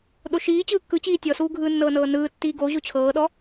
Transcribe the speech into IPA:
ɗ o ʃ iː t͡ɕ ɯː kː ɯ t͡ɕ iː tʲ ɔ s uː ɡʱ ɯː nː ɤː n ɤː n ɯː tː iː ɡ o ʑ o t͡ɕʰ ɤː ɗ ɔ

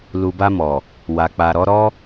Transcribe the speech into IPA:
l u˨ b a˧ m ɔ˨ | w a˨ k͡p a˨ ɾ ɔ˨˦ ɾ ɔ˦

